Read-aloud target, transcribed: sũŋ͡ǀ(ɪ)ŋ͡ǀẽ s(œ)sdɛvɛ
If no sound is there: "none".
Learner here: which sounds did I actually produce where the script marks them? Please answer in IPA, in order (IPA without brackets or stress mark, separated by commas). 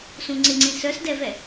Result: ɪ, œ